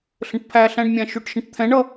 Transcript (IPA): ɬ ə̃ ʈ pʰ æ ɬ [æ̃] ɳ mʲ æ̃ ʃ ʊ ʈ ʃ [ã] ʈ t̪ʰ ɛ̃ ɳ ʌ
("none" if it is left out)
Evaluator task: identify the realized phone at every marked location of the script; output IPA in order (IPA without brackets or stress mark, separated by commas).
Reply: æ̃, ə̃